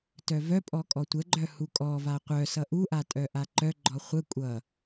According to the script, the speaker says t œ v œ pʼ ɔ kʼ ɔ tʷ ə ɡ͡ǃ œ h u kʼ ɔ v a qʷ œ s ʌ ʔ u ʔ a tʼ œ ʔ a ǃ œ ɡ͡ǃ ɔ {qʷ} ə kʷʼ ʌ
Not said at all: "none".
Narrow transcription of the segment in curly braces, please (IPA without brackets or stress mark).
χʷ